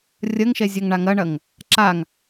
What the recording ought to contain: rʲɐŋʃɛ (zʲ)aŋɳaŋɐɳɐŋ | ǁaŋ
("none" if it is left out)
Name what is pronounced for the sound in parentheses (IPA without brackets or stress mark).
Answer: zʲ